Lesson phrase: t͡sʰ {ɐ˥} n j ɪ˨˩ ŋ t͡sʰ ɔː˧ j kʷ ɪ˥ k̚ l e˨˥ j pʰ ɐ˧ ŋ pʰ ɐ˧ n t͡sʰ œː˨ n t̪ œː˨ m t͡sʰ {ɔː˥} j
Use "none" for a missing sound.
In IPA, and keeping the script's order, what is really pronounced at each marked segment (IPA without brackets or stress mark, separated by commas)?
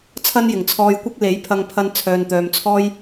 ɐ˥, ɔː˥